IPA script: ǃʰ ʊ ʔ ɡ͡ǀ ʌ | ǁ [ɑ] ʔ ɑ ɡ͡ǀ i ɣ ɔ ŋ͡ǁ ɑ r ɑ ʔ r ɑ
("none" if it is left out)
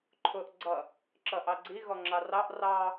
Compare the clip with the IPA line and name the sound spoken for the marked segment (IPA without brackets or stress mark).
ʌ